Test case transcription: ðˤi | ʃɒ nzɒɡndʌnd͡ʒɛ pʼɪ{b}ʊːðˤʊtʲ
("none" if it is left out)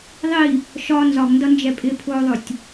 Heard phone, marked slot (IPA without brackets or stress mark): pʰ